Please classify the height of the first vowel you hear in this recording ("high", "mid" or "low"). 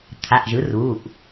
low